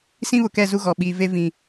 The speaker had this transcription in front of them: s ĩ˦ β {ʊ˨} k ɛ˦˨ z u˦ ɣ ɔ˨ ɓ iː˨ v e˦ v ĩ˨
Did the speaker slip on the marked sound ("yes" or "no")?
no